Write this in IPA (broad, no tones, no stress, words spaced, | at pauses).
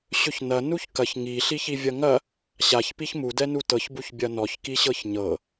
ɕɵçnɐ nuçkɐç ŋi ɬiçivʲɐŋɐ | ɕaç piçmu dɛnutɤç buçbʲɐnɔç kiɕɤçɲɤ